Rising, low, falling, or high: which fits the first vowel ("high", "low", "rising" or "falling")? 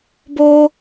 high